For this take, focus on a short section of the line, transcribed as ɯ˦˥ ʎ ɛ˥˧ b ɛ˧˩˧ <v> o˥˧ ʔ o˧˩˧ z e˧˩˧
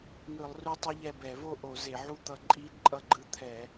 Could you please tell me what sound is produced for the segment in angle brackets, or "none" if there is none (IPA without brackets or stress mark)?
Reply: v